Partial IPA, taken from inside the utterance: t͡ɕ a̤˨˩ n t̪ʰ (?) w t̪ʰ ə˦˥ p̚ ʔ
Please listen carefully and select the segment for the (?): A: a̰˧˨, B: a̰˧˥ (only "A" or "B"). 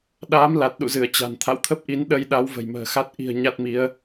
A